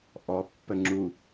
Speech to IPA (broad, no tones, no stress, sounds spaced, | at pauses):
ʔ ɔ pː ə ŋ͡ǁ u